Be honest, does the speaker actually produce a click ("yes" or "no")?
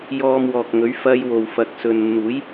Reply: no